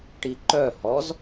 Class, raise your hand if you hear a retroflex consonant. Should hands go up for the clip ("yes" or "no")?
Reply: yes